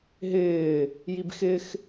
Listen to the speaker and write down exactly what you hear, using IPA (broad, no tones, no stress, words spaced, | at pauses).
ɦɪː | jibxɪx